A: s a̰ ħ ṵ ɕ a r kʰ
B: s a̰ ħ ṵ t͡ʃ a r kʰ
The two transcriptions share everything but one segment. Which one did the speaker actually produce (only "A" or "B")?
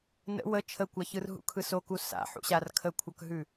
A